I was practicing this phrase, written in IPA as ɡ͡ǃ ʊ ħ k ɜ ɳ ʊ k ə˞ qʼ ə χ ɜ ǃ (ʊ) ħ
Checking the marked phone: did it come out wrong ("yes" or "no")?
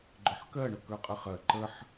yes